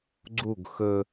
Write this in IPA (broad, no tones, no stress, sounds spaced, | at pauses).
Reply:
ɡ͡ǀ u ɡ x ɵ